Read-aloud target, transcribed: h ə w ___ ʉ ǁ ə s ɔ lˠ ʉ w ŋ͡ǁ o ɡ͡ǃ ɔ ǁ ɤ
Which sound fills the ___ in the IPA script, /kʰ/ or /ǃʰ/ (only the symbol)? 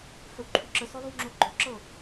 ǃʰ